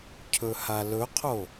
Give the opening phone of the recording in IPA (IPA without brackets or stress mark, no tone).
cʰ